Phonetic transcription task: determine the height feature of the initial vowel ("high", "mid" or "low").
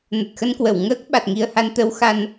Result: mid